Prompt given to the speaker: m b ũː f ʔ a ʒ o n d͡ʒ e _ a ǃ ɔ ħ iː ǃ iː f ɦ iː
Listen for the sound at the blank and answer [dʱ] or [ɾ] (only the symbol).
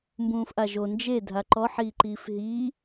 dʱ